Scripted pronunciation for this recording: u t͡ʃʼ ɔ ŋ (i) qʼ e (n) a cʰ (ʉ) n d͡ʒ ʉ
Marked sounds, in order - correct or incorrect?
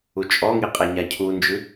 correct, incorrect: ɲ, incorrect: u

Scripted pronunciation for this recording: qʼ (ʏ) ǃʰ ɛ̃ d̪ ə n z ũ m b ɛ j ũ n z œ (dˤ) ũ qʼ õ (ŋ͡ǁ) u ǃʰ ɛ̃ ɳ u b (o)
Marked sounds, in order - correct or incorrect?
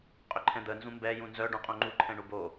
correct, incorrect: ɖ, incorrect: ŋ͡ǃ, correct

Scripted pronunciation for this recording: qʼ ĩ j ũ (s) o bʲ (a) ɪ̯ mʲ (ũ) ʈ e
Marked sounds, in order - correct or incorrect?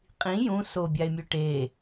correct, correct, incorrect: u

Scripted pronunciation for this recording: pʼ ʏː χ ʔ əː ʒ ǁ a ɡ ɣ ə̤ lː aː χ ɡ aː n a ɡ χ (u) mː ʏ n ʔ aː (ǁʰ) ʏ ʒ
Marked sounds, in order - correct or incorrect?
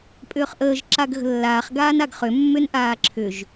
incorrect: ʏ, correct

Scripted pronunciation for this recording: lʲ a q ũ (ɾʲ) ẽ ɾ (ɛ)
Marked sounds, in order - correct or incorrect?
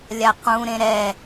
incorrect: ɾ, correct

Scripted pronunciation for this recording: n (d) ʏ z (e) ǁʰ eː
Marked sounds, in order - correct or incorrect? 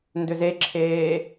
correct, correct

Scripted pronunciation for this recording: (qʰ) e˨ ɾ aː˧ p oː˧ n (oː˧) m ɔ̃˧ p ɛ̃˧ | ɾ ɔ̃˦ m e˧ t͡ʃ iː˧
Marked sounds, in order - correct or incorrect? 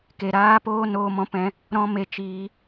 incorrect: k, correct

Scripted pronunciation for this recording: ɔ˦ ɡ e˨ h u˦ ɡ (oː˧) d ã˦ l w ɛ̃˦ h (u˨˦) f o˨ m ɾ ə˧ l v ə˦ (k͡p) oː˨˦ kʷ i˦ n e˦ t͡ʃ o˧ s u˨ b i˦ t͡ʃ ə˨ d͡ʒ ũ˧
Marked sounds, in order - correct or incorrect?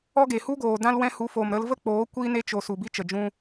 incorrect: oː˨, correct, correct

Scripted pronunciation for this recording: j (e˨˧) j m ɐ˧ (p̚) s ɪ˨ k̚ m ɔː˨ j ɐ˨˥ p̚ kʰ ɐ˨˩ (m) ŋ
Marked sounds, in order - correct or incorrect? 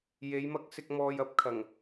correct, incorrect: k̚, incorrect: none

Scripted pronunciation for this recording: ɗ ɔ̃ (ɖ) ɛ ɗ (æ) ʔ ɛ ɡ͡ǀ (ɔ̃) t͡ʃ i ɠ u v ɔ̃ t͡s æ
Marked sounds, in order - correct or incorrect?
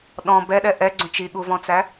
incorrect: b, incorrect: ɛ, incorrect: õ

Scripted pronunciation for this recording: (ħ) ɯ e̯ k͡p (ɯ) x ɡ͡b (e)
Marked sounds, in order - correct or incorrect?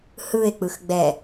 incorrect: h, correct, incorrect: ɛ

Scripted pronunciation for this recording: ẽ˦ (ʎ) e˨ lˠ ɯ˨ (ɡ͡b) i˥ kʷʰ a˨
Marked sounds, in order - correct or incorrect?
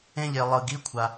correct, incorrect: ɡ

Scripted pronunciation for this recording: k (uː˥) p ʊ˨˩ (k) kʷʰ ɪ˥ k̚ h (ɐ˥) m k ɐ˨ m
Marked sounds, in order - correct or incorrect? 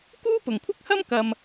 correct, incorrect: ŋ, correct

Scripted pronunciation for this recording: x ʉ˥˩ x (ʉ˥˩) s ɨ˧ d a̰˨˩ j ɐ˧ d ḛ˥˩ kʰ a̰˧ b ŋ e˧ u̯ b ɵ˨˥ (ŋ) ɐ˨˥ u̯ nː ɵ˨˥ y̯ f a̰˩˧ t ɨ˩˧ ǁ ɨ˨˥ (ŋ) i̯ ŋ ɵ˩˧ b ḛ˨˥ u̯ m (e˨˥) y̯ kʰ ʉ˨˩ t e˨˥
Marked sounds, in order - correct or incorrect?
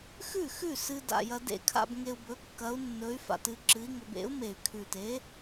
correct, incorrect: kː, incorrect: none, incorrect: e˨˩

